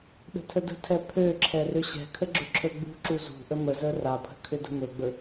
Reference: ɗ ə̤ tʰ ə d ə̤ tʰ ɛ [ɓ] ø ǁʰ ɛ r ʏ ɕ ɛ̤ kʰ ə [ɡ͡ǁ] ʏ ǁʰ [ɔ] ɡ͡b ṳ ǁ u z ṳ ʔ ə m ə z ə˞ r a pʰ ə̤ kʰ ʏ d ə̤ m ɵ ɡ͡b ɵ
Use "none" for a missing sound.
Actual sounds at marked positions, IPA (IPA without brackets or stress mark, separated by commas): pʰ, ɡ͡ǁ, ɵ